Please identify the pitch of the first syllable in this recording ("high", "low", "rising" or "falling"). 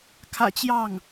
low